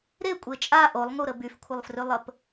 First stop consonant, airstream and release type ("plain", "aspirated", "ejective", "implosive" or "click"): ejective